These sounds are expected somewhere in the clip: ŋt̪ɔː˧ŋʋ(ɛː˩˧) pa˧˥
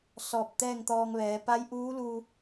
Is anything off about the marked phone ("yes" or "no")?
no